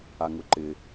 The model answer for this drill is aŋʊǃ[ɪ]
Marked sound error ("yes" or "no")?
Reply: no